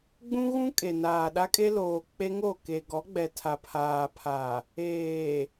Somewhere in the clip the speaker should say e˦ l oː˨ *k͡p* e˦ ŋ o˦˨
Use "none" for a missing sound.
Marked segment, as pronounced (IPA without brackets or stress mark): k͡p